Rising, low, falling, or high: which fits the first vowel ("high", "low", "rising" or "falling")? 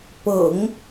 low